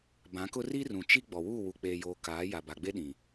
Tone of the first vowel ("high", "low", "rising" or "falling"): rising